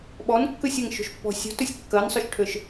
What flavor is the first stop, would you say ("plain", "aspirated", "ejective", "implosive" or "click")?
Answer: implosive